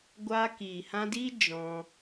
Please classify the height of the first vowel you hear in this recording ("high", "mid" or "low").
low